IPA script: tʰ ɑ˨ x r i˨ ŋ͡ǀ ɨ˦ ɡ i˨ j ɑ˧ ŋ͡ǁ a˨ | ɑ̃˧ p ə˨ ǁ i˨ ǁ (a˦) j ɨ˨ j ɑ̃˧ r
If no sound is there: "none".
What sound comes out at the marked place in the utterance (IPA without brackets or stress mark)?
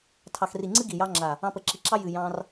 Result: ɑ˦